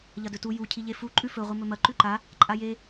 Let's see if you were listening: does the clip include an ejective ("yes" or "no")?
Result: yes